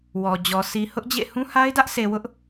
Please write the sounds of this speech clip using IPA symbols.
w ɔ˨ d͡ʑ ɔ˨ s i˨ h ʊ˦ ʔ d͡ʑ ḛ˦˨ h ũ˦ h a˦ ɪ̯ d ä˦ ʔ sʰ e˨ w ʊ˦ ʔ

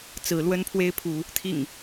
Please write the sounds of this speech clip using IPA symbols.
t͡s ɹ̩˨˦ l w ə˦ n pʰ w e˦ ɪ̯ pʰ u˨˦ | t̪ʰ ḭ˨˩ ŋ

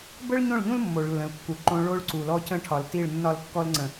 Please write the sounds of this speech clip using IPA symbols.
b ə˦ ɭ ɲ õ˦˨ ɭ ʎ ũ˦ l mː o˨ ɭ lː ə̃˨ l kː u˨ ǃ õ˦ ɭ o˦ ɭ ǀ u˨ l ɔ˦ c ə̃˦ ʈʰ ɒ˨ l t i˦˨ ɭ nː ɒ˦˨ l kː ɔ˦ l ŋ͡ǀ ə̃˨

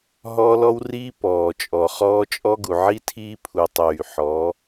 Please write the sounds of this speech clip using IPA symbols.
ɦ ɔː˦ l ɔ˦ w r iː˦ p ɔː˨ t͡ʃʼ ɔ˨ χ ɔː˦ t͡ʃʼ ɔ˦ ɡ u˨ ʕ i˦ tʰ iː˦ pʰ u˨ tˤ yː˨ ħ ɔː˨˦

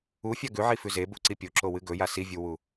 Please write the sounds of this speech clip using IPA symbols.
u fʲ a ɡ ʉ ʕ i f ʉ z e b u ǀ i pʲ o ǁ o w ɨ ɡ ɵ j a s i vʲ u w u

